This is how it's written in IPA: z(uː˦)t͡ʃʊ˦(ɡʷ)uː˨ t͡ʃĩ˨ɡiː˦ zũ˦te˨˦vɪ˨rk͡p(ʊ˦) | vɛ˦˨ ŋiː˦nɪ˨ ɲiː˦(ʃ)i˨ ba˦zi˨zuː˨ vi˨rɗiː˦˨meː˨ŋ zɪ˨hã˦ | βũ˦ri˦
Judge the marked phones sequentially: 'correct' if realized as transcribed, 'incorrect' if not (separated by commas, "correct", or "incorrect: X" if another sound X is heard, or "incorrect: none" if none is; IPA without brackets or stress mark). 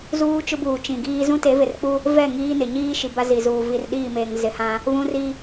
correct, incorrect: b, incorrect: u˦, correct